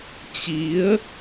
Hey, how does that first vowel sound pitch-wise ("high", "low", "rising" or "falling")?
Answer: rising